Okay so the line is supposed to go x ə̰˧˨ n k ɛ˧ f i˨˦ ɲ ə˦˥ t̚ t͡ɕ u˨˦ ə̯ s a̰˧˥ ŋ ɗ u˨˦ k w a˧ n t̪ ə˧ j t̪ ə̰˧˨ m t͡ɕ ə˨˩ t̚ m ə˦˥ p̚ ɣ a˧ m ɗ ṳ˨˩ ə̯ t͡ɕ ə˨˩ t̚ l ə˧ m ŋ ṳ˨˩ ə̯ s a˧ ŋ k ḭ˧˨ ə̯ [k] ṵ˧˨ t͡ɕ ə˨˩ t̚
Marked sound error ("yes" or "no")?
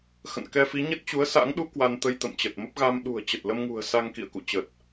no